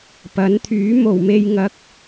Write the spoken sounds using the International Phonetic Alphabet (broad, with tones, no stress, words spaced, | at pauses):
pɐ˨˥nt̪ʰyː˨˥ mo˨˩wme˨jŋɐ˨k̚